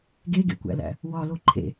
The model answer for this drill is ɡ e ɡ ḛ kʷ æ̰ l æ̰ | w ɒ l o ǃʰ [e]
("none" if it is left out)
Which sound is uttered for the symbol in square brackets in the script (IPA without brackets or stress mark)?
ḛ